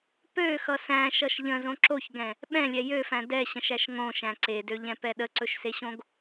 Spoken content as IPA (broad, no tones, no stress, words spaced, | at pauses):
pøxʌ sæ̃ʃʌʃ ʎə̃zõ ǁoçɡɛ̃ | ɓɛ̃lʲɛ jøfæ̃ dɛɕə̃ʃæʃ ŋõʃæ̃ ǀedøʎɛ̃pɛ ɗəǀɵʃseɕõɡ